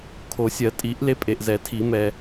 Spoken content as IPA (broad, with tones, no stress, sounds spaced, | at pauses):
kʰ o˨˩˦ sʲ ɜ˨˩˦ tʼ i˨˩˦ ʔ l e˨˥ pʼ e˨ ʔ z ɛ˨˩˦ tʰ i˨˩˦ m ɛ˨